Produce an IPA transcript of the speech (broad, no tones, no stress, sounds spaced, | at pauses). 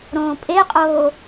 ɾ õː pʼ e qʼ oː